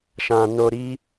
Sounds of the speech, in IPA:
ʃ ã˨ n o˧ ɾ i˦

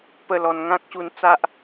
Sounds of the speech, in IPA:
p ə˥˧ l ɔ˧ n ŋ ã˦ k̚ ɕ u˧ n t͡s a˦ ʔ

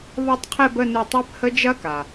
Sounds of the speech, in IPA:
β ɒ˥˧ tˤ qʰ ɛ˥˧ b ə˥˧ n u˧˩ tˤ ɜ˦˥ p h ə˦˥ d͡ʒ ɐ˦˥ k a˩

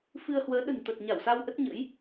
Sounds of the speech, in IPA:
f ɨ˧ ə̯ h w əː˨˦ ɗ ə̤˨˩ n t̪ ə˨˩ t̚ ɲ a˧˩ w s a˧ w ʔ ə˦˥ t̚ ɲ ə̰˧˥ j

